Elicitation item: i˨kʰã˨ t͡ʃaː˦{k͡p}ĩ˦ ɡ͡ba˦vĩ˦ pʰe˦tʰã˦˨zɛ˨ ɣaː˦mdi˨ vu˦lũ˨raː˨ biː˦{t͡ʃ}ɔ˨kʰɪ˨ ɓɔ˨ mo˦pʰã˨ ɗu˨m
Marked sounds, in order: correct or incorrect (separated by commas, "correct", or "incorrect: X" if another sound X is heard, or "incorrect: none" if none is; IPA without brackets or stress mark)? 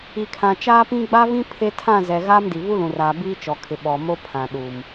incorrect: p, correct